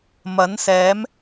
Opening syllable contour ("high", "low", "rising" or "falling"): rising